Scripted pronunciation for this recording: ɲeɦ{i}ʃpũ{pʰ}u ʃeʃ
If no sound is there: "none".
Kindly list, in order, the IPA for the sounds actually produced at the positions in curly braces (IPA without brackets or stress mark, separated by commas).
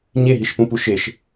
i, p